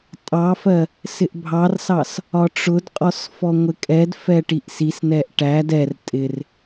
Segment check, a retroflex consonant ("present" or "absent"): present